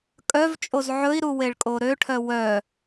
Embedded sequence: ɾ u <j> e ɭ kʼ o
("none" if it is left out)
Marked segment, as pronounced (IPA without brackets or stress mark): w